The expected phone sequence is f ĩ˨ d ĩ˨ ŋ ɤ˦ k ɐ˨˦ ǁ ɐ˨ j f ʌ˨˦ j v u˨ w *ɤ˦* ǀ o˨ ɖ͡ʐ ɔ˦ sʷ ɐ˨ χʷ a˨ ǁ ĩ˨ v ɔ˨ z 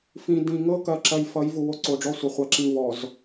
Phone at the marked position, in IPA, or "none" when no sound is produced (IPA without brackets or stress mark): o˦